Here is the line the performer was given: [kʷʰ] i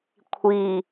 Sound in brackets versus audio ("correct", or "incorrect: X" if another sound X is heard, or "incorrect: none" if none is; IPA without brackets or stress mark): correct